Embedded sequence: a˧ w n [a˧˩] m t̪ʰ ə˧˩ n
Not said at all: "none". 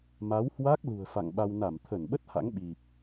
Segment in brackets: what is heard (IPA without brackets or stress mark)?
a˧˩